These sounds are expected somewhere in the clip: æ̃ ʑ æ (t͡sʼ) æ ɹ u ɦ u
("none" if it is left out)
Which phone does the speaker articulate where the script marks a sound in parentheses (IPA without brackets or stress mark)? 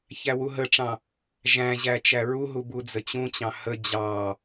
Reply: t͡ʃ